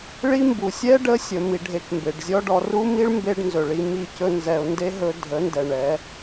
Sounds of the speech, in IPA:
ɭi˦mbu˨ sʲɛ˦ɖə˧ sʲə˨ mi˨ɖʱe˨k mbe˨ɖzʲɔ˦ɖɔ˧ ru˦mi˦ɭ mbe˧ɖ nzɵ˨ɭi˧ mi˦˨cɵ˦nzɛ˧ʊ̯ nde˦ɦɵ˧ dʱə˨˦ndɛ˨ɳɛ˨˦

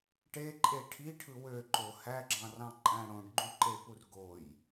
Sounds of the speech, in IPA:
ʈeǃʼe ʈʰiʈʰɯ wøǃo hæɡ͡ǁɑ̃rɑ̃ǃʼæ̃ ɽõɖɡ͡ǃyǃepur ɡoj

